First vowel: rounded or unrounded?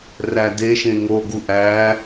unrounded